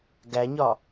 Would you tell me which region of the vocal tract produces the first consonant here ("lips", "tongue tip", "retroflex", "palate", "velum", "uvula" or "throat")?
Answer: velum